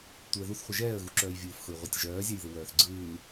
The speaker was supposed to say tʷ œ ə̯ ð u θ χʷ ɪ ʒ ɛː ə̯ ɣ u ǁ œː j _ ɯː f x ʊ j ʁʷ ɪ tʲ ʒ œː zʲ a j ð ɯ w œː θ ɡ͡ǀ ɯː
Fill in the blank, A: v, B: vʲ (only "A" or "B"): B